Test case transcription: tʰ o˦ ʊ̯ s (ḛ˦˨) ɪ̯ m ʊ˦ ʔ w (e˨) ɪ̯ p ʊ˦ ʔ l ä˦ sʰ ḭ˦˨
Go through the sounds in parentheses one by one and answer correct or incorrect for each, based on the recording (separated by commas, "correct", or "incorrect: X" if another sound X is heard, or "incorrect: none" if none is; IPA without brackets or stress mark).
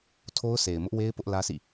incorrect: e˨, incorrect: e˦